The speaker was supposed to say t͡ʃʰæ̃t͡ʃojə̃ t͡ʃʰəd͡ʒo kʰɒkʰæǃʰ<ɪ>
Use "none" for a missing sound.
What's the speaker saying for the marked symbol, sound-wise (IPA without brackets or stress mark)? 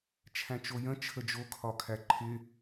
ɪ